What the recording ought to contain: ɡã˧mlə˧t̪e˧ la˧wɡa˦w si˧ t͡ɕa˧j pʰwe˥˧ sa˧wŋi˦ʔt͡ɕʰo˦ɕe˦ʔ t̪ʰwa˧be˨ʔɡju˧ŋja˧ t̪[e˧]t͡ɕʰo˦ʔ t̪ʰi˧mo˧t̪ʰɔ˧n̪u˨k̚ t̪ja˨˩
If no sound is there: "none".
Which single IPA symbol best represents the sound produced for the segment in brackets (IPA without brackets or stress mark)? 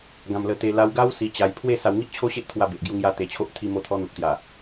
e˧